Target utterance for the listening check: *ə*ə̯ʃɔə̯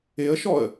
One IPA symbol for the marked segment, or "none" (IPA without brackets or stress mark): ɪ